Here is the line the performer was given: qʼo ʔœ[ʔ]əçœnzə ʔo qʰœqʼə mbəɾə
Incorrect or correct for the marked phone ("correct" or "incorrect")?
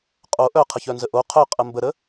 incorrect